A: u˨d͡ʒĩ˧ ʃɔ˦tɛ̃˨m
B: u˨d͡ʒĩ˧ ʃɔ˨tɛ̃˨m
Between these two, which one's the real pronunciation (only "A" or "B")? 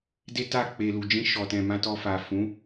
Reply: B